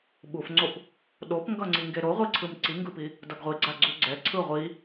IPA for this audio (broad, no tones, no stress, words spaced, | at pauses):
ɓufŋ͡ǀop | ɗopŋɡʌŋ͡ǀi ŋɡeɾoʁʷiǀʰɯm ǀiŋɡɯpi | dʌɡʁʷiɡ͡ǀa ɡ͡ǀuɡ͡ǀɛ ǀʰɯ ʁʷi